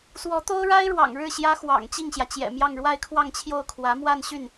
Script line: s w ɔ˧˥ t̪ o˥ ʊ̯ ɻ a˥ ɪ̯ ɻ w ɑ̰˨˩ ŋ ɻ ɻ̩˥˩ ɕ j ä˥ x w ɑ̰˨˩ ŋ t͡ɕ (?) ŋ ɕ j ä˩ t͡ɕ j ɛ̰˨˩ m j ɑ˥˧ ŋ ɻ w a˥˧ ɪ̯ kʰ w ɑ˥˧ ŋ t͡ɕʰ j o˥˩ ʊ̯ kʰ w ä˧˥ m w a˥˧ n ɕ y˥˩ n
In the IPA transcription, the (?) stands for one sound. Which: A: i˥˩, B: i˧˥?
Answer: A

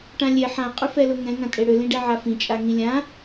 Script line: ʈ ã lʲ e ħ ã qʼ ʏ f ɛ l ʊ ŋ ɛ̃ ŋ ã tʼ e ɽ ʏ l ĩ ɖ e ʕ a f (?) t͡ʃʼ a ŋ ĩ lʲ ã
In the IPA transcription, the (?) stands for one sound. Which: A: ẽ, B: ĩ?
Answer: B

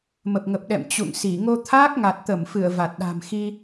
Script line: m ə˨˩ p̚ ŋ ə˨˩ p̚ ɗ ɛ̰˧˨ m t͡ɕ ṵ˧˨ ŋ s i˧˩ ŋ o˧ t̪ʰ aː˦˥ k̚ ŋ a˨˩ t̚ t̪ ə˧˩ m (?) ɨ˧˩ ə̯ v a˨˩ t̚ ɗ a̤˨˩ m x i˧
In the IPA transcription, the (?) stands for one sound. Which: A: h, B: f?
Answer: B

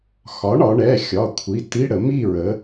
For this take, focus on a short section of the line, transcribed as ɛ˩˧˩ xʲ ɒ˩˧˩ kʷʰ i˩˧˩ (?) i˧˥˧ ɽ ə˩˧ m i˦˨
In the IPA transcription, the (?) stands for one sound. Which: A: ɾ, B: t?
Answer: B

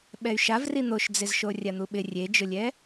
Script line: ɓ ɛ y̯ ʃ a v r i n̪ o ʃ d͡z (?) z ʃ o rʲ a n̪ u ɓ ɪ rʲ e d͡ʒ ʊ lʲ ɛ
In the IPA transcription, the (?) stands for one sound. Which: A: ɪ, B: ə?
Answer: A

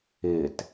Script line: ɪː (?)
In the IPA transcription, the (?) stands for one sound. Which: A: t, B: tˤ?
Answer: A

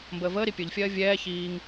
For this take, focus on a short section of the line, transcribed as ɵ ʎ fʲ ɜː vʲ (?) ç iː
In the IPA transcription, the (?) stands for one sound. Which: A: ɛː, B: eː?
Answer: A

